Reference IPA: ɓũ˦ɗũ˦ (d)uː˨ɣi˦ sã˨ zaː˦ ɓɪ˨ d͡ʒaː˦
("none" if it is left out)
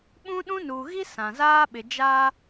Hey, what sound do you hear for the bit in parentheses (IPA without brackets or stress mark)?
n